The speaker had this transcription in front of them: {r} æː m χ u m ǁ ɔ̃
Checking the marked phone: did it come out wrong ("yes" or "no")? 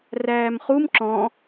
no